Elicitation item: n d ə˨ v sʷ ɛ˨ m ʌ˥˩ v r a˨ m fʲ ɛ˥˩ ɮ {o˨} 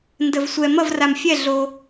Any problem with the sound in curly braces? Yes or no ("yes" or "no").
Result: no